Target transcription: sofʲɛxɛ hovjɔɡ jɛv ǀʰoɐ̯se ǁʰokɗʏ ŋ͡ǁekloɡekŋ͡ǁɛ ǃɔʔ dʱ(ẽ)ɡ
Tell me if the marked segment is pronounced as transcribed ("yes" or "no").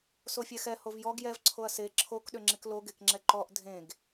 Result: yes